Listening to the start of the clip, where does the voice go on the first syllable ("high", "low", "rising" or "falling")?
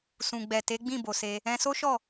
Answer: low